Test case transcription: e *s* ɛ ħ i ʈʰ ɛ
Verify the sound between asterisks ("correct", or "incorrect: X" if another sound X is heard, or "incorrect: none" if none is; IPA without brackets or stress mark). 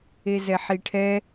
incorrect: z